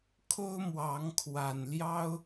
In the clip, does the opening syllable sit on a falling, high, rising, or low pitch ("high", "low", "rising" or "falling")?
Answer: high